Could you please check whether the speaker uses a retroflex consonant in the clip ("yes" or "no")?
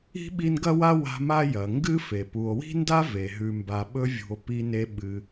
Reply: no